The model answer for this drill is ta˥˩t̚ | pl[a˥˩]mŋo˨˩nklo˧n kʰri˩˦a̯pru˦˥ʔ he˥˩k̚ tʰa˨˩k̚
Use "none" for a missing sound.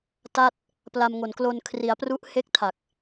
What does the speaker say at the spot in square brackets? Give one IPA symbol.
a˧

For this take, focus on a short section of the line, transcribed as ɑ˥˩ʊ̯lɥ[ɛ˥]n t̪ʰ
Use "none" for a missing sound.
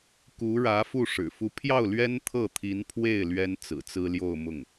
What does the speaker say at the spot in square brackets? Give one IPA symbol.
ɛ˥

